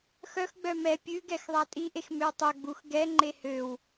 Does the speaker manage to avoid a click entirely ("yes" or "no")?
no